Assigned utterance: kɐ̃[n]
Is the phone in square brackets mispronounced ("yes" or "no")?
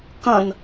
no